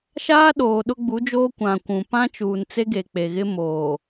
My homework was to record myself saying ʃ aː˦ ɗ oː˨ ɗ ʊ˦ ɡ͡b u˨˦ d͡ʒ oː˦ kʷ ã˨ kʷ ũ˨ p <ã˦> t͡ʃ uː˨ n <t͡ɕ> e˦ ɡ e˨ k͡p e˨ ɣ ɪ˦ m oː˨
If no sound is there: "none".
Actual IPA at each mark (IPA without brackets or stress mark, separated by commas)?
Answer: ã˦, t͡s